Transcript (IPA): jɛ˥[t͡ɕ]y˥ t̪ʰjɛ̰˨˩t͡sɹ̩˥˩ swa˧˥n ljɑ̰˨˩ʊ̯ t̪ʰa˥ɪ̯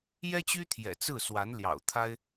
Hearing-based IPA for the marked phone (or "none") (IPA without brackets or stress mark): t͡ɕ